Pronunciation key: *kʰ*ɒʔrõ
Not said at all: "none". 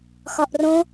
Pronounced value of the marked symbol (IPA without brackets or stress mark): x